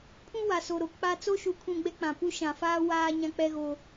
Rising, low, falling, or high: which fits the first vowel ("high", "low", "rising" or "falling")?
high